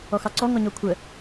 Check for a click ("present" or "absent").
present